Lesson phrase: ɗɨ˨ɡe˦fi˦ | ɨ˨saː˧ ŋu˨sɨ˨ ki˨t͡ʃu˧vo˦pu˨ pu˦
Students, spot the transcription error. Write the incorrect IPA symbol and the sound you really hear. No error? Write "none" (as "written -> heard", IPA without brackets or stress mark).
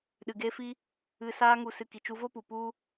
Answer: none